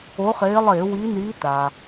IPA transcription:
o˨˦ χ eː˨˦ lˠ eː˧˩˧ w i˨˦ n iː˨˦ t a˩

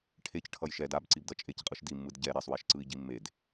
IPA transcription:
ʈʰ e c ʈʰ ʌ j ʃ ɛ d a b ǀ i b d ʌ t͡ʃʼ e c qʼ ɯ ʃ d i mː ɯ d ɟ ɛ ɾ ɛ sˤ w ɛ ʃ ǀ ɯ i̯ ɟ i mː e d

